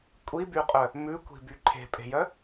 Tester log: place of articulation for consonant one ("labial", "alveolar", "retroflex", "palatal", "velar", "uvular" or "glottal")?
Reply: velar